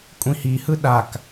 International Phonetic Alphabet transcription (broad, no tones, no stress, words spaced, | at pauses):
kʷʼĩhihɯ ɗak